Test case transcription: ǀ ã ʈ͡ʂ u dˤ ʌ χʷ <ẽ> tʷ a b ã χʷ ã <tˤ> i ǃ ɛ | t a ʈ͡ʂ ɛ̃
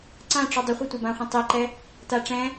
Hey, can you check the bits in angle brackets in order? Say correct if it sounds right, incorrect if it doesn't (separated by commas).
incorrect, correct